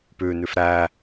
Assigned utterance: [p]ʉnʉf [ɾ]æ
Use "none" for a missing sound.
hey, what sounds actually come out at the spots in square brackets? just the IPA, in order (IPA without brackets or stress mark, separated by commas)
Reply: p, ɾ